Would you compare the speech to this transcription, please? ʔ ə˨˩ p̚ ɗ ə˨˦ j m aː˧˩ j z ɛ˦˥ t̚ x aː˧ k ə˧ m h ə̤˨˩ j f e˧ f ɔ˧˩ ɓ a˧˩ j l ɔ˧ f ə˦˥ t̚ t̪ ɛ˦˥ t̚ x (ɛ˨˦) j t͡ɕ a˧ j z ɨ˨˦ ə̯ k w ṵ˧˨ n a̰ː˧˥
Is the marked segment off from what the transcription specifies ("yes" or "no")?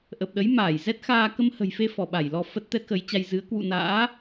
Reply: yes